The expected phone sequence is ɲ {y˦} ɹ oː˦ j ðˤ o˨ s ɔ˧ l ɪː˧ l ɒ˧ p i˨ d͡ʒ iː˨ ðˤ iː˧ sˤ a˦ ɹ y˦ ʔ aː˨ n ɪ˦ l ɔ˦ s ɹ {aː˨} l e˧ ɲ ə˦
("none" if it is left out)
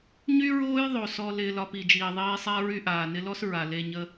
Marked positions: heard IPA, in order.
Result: y˦, a˨

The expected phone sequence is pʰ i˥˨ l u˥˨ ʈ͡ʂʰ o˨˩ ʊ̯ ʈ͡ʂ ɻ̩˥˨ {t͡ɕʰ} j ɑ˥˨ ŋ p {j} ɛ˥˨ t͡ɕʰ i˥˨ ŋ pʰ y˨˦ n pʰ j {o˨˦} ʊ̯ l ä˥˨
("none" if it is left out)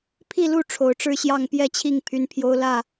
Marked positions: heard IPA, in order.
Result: ɕ, j, o˦

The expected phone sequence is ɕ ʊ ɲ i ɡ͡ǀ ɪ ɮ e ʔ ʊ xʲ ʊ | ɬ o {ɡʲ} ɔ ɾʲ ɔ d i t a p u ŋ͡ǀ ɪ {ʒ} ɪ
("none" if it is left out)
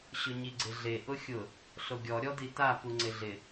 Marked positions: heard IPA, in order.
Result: ɡʲ, ɮ

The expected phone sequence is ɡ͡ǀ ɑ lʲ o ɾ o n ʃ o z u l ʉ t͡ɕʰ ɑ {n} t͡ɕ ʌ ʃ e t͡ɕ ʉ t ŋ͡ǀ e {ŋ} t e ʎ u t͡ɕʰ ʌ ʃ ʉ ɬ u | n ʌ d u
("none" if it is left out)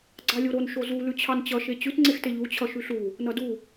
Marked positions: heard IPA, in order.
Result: n, x

